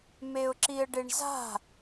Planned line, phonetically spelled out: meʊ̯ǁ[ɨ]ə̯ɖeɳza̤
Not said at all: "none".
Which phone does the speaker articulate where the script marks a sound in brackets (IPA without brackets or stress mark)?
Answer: i